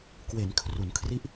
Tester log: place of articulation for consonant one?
velar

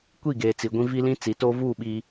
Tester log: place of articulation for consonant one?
velar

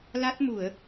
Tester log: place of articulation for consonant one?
alveolar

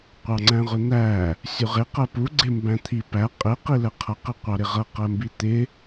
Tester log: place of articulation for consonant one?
uvular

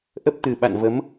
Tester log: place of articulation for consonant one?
glottal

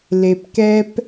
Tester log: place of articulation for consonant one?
alveolar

